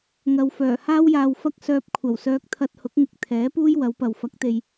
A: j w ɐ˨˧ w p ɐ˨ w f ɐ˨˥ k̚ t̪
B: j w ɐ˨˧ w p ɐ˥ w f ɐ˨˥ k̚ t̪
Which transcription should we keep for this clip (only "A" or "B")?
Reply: A